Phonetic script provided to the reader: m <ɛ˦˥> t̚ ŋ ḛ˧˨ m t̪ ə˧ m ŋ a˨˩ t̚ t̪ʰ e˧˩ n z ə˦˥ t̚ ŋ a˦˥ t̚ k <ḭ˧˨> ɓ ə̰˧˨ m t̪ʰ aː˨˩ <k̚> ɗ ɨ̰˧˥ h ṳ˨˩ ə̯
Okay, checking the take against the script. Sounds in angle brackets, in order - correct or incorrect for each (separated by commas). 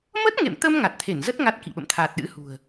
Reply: incorrect, correct, incorrect